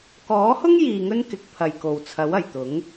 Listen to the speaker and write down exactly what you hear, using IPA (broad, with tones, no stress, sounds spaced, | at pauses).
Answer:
k ɔː˨˥ h ʊ˥ ŋ j iː˧ ŋ ɵ˥ n k ɪ˨˥ k̚ pʰ ɐ˨ j k o˨ w t͡sʰ ɐ˨˥ w ɐ˨˩ j t̪ ʊ˨˥ ŋ